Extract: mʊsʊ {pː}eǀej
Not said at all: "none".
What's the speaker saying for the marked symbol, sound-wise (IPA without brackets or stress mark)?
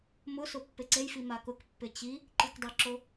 pː